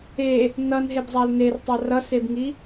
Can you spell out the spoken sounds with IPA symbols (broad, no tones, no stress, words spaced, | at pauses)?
e | nʌnɦebzˤal nertˤa rʌsebŋi